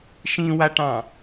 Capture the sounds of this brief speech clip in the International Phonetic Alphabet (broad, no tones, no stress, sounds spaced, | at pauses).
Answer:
ʃ ĩ w a ʈ ɑ̃